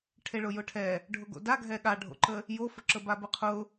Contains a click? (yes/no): yes